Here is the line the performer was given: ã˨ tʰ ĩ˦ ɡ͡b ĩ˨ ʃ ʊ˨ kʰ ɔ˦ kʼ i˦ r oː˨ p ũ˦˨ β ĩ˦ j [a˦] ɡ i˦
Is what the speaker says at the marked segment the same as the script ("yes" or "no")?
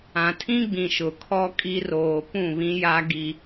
yes